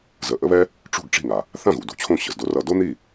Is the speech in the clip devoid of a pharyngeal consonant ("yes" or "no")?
yes